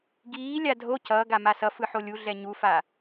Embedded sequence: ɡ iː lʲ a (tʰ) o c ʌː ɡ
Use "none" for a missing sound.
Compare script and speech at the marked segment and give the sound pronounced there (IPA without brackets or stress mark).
dʱ